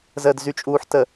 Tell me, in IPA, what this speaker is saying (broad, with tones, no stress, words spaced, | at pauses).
zəː˨dzy˨t͡ʃʼuː˨ħ tə˨